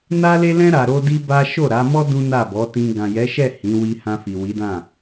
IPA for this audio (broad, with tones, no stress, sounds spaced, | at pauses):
n a˦ l e˦ l ɛ̃˦ ɾ a˧ ɾ o˦ d i˦ b a˦ ʃ o˦˨ ɾ a˨˦ m ɔ˦ d ũ˦ n a˦˨ b ɔ˨˦ t ĩ˧ ɡ ã˨ j ɛ˨˦ ʃ ɛ˦˨ h ĩ˨˦ w i˧ h ã˧ f i˨ w i˨˦ d ã˦˨